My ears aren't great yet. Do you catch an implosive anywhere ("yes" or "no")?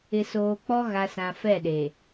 yes